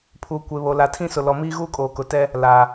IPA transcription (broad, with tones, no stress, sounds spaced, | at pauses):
pʰ u˨ kʷ e˨ β o˨ l a˨ tʰ ĩ˦ s ʊ˨ l ɔ˨ m iː˦ ɣ uː˦ kʼ oː˨ k ʊ˨ t ɛ˦ | l a˨